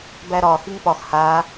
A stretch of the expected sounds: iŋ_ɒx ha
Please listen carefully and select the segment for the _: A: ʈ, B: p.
B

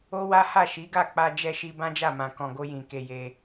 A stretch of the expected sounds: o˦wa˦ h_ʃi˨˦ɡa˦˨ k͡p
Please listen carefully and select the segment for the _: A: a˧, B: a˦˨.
B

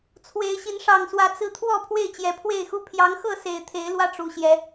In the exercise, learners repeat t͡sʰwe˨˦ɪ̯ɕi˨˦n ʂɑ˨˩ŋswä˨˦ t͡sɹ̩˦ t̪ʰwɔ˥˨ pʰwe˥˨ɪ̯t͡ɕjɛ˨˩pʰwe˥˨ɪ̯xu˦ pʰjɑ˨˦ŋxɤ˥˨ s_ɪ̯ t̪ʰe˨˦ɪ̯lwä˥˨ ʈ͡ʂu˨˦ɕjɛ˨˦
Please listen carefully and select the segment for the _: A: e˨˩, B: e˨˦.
A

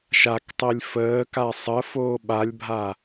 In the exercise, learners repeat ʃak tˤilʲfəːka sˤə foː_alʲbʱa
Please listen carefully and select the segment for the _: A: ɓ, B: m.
A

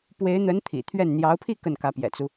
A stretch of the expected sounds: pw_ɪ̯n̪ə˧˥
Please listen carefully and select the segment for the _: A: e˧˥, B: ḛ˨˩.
A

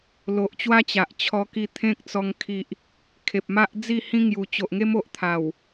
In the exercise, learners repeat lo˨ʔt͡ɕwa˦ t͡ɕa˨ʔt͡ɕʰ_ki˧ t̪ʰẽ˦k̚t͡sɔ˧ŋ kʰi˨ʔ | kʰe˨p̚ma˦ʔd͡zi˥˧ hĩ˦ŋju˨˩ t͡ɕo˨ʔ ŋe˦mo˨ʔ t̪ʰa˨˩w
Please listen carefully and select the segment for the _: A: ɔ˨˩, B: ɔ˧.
B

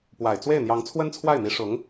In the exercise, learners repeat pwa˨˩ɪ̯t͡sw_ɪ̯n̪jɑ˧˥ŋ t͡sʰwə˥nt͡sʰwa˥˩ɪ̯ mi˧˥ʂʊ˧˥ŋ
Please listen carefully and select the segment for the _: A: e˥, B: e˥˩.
B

